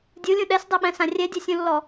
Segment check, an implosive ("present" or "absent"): present